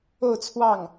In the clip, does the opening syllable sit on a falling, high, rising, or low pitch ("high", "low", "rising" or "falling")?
falling